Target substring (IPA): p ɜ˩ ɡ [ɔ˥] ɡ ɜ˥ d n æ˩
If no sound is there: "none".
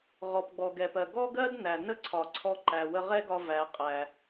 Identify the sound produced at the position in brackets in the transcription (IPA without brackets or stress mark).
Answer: ɔ˥